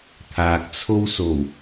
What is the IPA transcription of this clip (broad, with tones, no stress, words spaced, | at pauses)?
t̪ʰaː˨k̚t͡sʰo˥wso˨˩w